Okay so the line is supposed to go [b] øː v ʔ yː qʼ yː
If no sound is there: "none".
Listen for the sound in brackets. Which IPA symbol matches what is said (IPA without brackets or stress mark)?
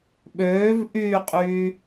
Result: ɓ